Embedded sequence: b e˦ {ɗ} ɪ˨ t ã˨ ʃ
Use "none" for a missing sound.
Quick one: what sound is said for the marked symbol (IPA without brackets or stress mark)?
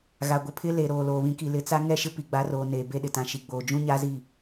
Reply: ɗ